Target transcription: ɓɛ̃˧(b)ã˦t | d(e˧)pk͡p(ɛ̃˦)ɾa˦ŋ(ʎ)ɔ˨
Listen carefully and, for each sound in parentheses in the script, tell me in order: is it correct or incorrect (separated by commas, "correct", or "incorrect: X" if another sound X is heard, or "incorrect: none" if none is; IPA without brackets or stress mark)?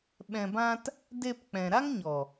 correct, correct, incorrect: ɛ̃˨, incorrect: ɲ